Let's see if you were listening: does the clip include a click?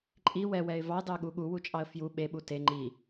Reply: yes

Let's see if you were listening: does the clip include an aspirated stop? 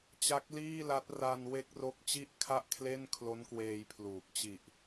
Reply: yes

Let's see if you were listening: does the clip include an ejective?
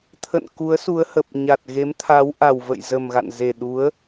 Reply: no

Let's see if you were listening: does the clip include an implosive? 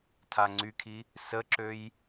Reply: no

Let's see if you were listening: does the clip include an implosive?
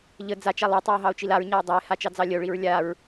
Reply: no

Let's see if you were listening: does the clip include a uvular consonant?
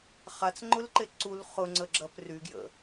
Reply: yes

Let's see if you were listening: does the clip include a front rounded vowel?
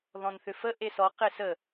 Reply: yes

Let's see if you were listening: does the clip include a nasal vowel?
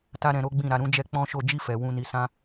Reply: yes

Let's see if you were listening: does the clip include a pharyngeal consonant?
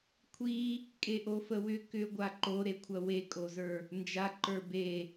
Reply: no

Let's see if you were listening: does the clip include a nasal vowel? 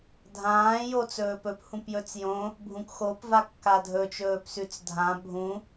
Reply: yes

